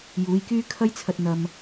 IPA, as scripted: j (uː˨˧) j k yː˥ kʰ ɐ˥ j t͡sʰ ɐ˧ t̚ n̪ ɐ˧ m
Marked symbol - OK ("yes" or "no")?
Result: yes